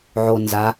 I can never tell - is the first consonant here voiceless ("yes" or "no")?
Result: no